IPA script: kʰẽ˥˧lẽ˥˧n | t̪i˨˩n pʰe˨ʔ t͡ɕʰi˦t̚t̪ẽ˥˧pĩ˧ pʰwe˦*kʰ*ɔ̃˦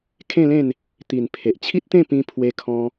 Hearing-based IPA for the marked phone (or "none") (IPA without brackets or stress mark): kʰ